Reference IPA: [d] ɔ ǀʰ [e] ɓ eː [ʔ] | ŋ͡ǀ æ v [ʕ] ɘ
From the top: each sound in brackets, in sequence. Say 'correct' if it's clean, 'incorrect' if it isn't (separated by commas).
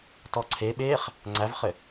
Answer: incorrect, correct, incorrect, incorrect